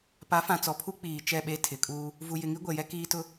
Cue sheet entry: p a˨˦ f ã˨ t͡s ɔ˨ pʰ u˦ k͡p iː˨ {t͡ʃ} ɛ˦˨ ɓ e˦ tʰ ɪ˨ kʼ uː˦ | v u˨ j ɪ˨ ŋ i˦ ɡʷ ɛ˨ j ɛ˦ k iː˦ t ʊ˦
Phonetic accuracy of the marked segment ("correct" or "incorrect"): correct